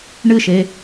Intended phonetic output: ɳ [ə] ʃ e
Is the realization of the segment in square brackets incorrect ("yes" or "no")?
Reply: yes